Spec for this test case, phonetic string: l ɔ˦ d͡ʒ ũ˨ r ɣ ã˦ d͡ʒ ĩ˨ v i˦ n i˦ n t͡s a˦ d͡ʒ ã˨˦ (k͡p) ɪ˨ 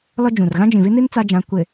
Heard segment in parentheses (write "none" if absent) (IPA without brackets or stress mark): kʷ